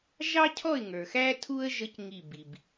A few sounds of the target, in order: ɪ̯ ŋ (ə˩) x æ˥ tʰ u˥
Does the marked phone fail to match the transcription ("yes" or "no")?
yes